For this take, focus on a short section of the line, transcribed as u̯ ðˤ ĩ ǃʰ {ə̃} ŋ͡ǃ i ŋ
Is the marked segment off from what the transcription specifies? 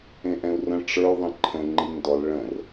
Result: no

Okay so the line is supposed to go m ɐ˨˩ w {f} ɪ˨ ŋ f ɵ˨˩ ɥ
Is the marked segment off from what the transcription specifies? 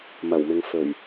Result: yes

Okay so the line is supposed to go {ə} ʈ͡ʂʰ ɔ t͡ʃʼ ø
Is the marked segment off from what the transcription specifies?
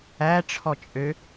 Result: yes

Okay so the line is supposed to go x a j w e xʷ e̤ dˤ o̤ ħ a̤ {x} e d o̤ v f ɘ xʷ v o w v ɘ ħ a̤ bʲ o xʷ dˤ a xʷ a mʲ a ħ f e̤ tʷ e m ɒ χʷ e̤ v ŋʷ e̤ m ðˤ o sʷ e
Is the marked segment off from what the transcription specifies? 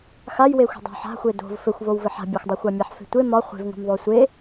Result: yes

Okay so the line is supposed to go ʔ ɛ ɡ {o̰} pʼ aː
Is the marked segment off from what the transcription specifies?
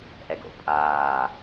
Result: no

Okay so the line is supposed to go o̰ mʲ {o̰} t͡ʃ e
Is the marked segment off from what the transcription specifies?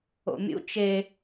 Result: yes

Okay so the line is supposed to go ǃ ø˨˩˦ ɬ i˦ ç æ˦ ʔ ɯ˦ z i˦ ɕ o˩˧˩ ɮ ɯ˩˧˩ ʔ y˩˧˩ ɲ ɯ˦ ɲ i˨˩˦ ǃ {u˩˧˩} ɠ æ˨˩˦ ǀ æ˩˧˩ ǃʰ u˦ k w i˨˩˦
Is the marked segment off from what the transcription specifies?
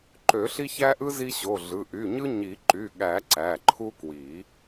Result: yes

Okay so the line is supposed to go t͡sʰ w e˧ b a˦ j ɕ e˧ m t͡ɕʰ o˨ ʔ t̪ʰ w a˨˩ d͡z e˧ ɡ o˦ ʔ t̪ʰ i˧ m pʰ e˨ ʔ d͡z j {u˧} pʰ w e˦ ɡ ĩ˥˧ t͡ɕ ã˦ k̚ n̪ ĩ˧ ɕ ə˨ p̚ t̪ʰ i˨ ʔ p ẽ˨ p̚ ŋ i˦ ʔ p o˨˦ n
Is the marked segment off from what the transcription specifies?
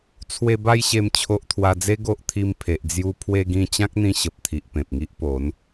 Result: no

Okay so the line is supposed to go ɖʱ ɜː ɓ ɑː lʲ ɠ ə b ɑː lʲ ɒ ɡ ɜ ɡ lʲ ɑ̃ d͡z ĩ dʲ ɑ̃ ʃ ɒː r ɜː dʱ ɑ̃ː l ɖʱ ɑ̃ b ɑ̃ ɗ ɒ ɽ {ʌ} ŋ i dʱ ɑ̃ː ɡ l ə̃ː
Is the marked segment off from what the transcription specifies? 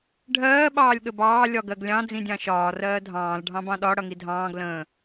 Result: no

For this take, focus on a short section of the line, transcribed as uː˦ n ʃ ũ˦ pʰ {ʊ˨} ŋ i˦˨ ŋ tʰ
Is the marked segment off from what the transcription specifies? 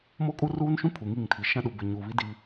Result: yes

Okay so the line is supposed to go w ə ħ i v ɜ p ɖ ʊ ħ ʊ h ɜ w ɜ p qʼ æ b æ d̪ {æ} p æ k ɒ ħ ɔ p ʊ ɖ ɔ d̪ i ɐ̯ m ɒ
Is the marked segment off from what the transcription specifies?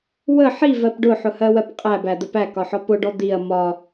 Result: yes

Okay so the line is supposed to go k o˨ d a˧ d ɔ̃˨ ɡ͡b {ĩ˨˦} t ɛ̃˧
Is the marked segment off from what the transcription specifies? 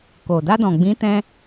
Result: no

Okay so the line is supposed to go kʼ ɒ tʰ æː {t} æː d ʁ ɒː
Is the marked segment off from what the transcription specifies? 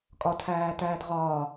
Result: no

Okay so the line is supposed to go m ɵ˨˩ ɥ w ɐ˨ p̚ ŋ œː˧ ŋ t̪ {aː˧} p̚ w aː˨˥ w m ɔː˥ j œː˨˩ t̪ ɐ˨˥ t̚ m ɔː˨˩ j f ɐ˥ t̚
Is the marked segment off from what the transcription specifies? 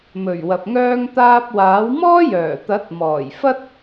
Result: no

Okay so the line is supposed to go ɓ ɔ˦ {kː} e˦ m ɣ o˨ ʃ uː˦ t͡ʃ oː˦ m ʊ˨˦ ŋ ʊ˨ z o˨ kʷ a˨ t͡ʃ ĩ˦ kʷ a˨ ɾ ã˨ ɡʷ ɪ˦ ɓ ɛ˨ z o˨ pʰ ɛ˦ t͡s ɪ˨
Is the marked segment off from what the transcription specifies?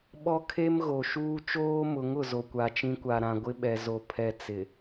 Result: yes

